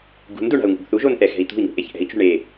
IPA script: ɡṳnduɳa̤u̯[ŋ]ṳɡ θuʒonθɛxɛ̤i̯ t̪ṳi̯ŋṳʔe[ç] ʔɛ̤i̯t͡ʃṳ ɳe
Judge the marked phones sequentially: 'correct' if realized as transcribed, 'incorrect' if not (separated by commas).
correct, correct